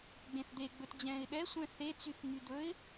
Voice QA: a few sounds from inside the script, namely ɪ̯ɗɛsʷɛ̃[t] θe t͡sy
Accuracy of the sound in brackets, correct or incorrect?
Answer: incorrect